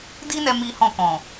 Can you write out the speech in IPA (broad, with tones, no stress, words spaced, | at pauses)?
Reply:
di˦nɛ˧ mi˦hɔ̃˦˨kɔ̃˨